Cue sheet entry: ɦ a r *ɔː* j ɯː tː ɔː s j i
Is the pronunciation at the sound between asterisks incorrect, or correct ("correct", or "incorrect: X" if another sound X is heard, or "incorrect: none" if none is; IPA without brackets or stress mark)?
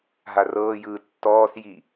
incorrect: ɤː